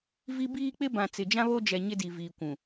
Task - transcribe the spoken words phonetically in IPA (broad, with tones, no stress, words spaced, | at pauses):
vi˦ biː˦k͡pɪ˦bã˨ t͡sɪ˨d͡ʒã˦βo˦d͡ʒɛ˨ ɲɪ˦di˨ viː˨kʷũ˨